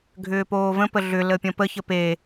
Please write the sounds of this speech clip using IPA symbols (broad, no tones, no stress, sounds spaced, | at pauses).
ɡʱ ʏː p oː v ə̃ p ə ɮ ʏ l ə pʲ ə̃ p ə ç ə p e